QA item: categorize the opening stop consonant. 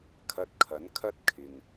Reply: aspirated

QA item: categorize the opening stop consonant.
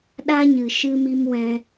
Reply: implosive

